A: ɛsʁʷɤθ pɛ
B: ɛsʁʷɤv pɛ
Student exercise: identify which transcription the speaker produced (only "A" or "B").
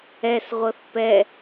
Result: A